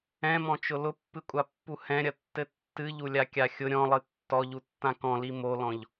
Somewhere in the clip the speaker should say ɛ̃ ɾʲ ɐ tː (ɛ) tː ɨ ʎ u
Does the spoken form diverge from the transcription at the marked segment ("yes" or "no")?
yes